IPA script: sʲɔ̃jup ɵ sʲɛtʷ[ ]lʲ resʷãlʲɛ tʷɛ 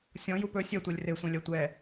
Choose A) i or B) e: B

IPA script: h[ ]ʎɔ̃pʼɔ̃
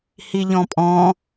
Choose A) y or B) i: B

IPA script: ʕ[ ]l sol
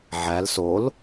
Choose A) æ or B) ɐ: A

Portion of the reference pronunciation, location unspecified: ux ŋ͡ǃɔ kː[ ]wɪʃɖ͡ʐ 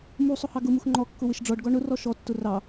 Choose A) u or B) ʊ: B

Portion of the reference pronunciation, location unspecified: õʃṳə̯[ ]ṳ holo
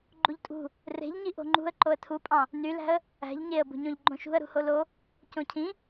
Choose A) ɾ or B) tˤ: A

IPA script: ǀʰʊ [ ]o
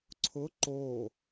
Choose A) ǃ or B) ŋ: A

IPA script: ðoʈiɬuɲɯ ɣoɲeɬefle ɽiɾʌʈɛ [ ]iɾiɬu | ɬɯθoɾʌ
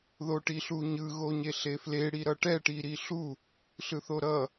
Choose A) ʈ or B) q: A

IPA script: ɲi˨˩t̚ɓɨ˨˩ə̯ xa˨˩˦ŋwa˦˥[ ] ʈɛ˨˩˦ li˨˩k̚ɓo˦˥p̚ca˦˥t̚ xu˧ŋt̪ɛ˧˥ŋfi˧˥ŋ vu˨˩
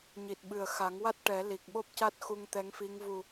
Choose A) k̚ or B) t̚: B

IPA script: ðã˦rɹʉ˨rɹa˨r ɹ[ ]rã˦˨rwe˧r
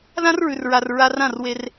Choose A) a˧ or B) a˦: A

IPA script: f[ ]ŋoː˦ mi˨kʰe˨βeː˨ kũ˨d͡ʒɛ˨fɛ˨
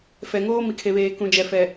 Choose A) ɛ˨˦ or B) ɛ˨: B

